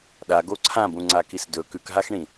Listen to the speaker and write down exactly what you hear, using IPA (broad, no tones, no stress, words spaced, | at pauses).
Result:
ɗaɡo ǀʰãbũŋ͡ǀakis dɵ kʉkɦaxɳĩ